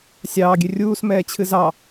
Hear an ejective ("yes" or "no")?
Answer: no